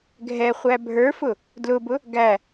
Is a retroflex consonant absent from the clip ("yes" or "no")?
yes